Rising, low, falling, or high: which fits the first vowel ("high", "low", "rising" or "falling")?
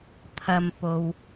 low